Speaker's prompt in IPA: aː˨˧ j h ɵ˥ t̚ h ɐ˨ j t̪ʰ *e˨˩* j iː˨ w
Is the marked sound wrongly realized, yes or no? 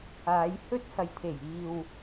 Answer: no